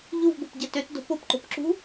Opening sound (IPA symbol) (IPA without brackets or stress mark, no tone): ʎ